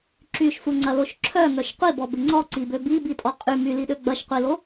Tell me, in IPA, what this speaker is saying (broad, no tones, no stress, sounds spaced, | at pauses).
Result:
ǁ y ʃ sʷ ɐ ŋ͡ǀ ɐ l o ʃ ǁʰ œ ŋ œ ʃ qʷ i b ɔ b ɪ ŋ͡ǀ ɔ ǀ i b ø b i b i tʼ ɔ qʼ y m y l i ɗ ø ɡ͡b ɐ ʃ qʷ i l o